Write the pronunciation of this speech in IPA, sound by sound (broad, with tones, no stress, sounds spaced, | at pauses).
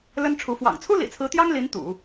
l ə˥ n ʈ͡ʂʰ u˧˥ f w ɑ̰˨˩ ŋ t͡sʰ u˥ l ḭ˨˩ t͡sʰ ɹ̩˧˥ t̪ j ɑ˥ ŋ l i˧˥ n t̪ ṵ˨˩˦